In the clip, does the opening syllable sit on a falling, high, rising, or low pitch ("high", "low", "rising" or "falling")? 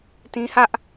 high